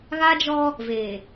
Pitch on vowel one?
high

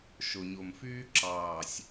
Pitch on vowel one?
low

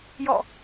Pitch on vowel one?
falling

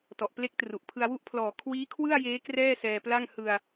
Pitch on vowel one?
low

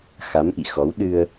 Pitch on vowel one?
rising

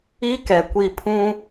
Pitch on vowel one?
high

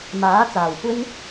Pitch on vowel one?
rising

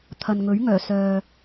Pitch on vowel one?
low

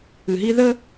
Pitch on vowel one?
low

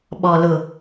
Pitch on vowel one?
low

